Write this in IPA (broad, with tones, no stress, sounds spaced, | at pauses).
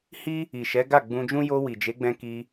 h i˦ | i˨ ʃ ɛ˨˦ ɡ a˦˨ ɡ͡b ũ˧ d͡ʒ ũ˦ j o˧ w i˨ d͡ʒ e˨˦ ɡ͡b ɛ̃˧ k i˧